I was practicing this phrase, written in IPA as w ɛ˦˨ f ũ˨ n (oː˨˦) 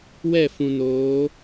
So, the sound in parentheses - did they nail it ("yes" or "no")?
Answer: yes